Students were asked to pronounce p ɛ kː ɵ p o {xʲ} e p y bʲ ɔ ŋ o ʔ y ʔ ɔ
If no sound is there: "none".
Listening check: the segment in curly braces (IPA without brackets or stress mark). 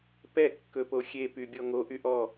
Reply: xʲ